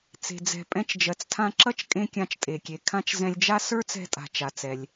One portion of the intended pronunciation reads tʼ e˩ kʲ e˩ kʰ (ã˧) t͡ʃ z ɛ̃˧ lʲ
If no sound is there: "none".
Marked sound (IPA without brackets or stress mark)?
ã˧